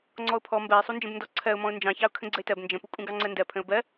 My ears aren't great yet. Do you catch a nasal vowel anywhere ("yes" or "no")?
yes